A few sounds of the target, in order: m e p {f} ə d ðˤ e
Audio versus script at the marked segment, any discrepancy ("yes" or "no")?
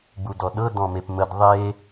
yes